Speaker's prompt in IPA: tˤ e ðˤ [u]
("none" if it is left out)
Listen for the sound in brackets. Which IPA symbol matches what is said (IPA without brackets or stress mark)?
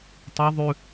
ʉ